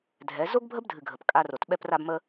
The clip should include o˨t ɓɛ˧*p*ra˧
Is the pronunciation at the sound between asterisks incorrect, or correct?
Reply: correct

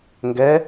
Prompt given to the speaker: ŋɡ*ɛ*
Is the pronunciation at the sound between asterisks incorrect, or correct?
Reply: correct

